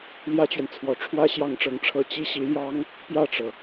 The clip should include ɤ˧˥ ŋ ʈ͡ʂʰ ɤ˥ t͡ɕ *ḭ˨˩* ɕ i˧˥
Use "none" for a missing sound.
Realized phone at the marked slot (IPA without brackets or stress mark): i˥